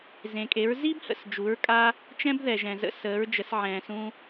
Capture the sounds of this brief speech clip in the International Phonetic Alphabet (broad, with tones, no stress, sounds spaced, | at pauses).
z ẽ˩ kʼ e˩˥ ɹ z i˥ b h ə̰˩ s d͡ʒ u˩˥ ɹ kʼ a˥ | t͡ʃ ɛ̃˥ b ð ɛ˩ ʒ ɛ̃˩ z ə̰˧ s əː˩˥ ɹ d͡ʒ ə˩˥ s ʕ ɛ̃ː˩ s ũ˧